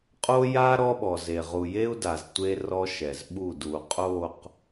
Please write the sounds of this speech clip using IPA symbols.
qʼ o˦ j a˦ ɾ ɔ˦ ɓ ɔ˨ z e˨ ʁ u˨ j e˦ u̯ d a˨ z tʷ e˦ r ɔ˦ ʃ ɛ˨ z ɓ u˦˨ d u˨ qʼ o˦˨ q

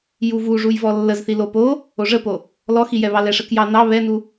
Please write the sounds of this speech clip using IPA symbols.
j u v u ʐ u j v ɔ lː ə z θ i l o p o | o ʐ ə p o | l ɔ x i j ɛ β ɑ l ɛ ʂ ə k j ɑ n ɑ β ɛ n u

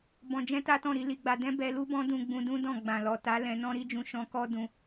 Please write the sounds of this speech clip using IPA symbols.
b ɔ̃˧ d͡ʒ ɛ̃˦ t a˦ t ɔ̃˦˨ ɾ i˨˦ l i˧ ɡ͡b a˧ d ɛ̃˦ b ɛ˧ l u˦ b ɔ̃˦ d ũ˧ ɡ͡b ũ˧ d ũ˦ d ɔ̃˦˨ ɡ͡b ã˨ l ɔ˨ t a˨˦ l ɛ̃˧ n ɔ̃˦ ɾ i˦ d͡ʒ ũ˧ ʃ ɔ̃˧ k ɔ˦ d ũ˧

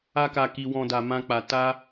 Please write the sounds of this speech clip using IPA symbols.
a˦ k a˧ k i˧ w ɔ̃˧ d a˧ m ã˦ k͡p a˧ t a˦

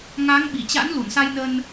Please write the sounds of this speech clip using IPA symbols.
ŋ a˨˦ ŋ ɓ i˧˩ t͡ɕ a̰˧˥ n l u˧˩ n s a˧ j n ə˧ n

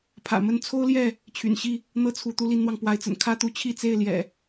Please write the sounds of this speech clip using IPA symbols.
pʰ ä̰˨˩ m ə˥˨ n t͡sʰ o˦ ʊ̯ l j ɛ˥˨ | t͡ɕʰ y̰˨˩ n ɕ i˥˨ | n̪ ɤ˥˨ t͡sʰ u˨˦ t̪ u˦ l i˦ n n̪ w ɑ˨ ŋ p w a˨˦ ɪ̯ t͡s ə̰˨˩ n kʰ ä˦ t̪ u˨˦ t͡ɕʰ i˥˨ t͡s e˥˨ ɪ̯ l j ɛ̰˨˩

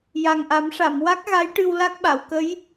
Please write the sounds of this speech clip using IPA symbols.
j a˨˩ ŋ ʔ a˨˩˦ m ʂ a˨˩˨ m w a˦˥ k̚ ɣ a˧˥ j ʈ ɨ˧ w l a˦˥ k̚ ɓ a˨˩˨ w k ə˧˥ j

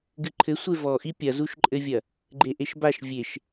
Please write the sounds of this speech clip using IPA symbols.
ɡ ɨ ǃʰ ɘ sʷ e v ɔ ʔ i pʲ ɐ z u ʃ ǃʼ ɘ vʲ ɐ | ɡ͡ǃ e ʔ e ʃ b a ʃ vʲ e ʃ

